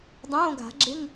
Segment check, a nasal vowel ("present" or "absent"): present